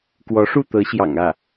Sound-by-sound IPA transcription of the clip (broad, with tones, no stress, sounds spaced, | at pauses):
k w ɔ˧˥ ʂ u˥˩ t̪ ɤ˧˥ ɕ j ɑ̰˨˩ ŋ ä˥˩